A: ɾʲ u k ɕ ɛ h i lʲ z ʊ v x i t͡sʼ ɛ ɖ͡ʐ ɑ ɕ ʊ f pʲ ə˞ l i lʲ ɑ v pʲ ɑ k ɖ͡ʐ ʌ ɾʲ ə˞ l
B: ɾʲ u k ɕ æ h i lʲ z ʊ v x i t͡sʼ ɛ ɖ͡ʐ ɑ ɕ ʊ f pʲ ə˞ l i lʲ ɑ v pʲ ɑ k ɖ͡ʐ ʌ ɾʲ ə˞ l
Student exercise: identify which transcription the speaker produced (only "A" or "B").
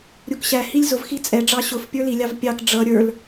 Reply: B